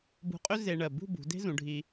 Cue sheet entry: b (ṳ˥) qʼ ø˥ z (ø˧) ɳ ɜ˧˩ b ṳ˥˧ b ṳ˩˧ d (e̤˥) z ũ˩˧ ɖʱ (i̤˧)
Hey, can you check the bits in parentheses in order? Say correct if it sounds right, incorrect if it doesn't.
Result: incorrect: ṳ˧, incorrect: e˧, correct, incorrect: i˧

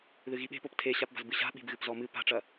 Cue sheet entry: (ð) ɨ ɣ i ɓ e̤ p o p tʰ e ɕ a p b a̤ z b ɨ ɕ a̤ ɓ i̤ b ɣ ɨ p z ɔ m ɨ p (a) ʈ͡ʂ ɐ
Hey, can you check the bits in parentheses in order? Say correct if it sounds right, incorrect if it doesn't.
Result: correct, incorrect: a̤

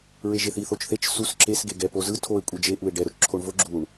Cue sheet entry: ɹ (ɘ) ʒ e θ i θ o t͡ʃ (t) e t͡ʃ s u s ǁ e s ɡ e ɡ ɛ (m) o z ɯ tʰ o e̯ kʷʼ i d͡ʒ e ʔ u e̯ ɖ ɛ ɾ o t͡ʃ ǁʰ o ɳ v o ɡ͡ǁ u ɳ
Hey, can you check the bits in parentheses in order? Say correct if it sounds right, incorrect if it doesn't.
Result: incorrect: e, incorrect: θ, incorrect: p

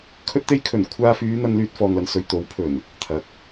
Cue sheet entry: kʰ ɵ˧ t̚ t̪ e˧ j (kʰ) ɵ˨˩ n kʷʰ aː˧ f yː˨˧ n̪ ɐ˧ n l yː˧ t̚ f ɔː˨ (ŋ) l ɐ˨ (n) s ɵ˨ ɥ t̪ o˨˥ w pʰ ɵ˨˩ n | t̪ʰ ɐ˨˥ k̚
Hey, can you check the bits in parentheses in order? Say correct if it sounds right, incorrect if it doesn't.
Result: correct, correct, correct

